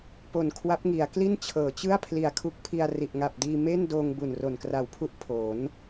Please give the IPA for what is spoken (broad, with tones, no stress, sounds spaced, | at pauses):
p o˨˩ n kʰ w a˦˥ p̚ ŋ i˩˦ a̯ k l i˥˩ n t͡ɕʰ ɤː˩˦ t͡ɕ ɯ˥˩ a̯ pʰ l i˨˩ a̯ kʰ u˦˥ k̚ pʰ i˧ a̯ r i˨˩ ʔ ŋ a˨˩ p̚ d iː˧ m e˥˩ n d oː˧ ŋ b u˨˩ n r o˨˩ n k r a˨˩ w pʰ u˥˩ ʔ pʰ o˩˦ n